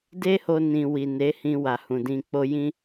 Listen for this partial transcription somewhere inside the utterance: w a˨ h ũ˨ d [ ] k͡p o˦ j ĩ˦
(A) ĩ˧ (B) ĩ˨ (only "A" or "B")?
A